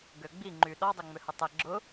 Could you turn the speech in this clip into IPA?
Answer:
ɡ ø ɡ͡b i ŋ͡ǃ y ɗ ɔ dˤ ø ŋ͡m ø h ə tˤ ɛ ɡ͡ǁ ʊ

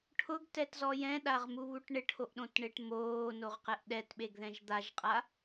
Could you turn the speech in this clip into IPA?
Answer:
ʈʰ ʊ ɡ t ɛ t z ɔ j ɛ̃ ɗ a ʁ m u β u ʈ ɳ ɪ ʈʰ o ʔ ɗ õ t ɳ e ʈ m oː n o ʁ q ɛ ʔ ɗ ɛ t ɓ e ɡ ð ɛ̃ ʒ d̪ a ʒ qʼ a

